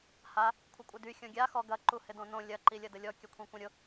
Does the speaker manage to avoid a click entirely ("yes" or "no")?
no